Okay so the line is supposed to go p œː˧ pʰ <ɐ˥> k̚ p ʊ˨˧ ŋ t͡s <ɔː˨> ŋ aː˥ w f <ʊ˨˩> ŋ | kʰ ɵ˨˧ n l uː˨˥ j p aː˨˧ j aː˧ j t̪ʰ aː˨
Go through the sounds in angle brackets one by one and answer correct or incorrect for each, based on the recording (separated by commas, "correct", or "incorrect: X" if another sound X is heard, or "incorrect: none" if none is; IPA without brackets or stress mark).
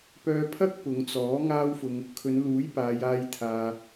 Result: correct, incorrect: ɔː˨˥, incorrect: ʊ˧